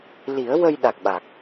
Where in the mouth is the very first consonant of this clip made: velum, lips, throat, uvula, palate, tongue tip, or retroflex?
tongue tip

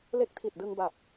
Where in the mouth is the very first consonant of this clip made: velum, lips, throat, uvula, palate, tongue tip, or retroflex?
tongue tip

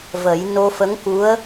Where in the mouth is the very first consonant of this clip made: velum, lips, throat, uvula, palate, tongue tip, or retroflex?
lips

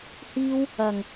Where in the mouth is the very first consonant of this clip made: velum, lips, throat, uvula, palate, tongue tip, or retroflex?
throat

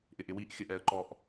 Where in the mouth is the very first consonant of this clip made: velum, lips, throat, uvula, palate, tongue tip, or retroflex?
throat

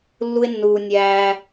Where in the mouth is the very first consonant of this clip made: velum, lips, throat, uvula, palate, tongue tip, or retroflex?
tongue tip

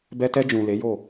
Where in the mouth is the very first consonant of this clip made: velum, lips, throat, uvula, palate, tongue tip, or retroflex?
lips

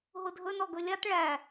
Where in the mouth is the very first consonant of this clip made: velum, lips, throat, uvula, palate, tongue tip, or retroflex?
throat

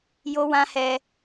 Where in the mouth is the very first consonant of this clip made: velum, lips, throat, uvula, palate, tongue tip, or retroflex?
palate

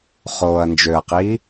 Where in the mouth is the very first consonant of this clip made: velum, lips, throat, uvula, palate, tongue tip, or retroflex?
uvula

